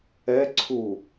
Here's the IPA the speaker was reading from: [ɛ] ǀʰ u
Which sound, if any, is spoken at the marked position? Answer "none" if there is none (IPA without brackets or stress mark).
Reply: ɛ